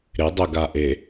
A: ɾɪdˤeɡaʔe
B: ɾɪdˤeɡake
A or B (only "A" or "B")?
A